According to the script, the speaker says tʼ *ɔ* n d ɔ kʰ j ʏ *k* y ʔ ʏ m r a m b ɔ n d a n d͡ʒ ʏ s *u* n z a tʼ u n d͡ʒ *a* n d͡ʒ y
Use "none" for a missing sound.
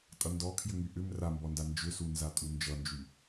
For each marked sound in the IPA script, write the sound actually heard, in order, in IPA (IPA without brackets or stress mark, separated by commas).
ʌ, ŋ, u, ʌ